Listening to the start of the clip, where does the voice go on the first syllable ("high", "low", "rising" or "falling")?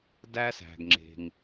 high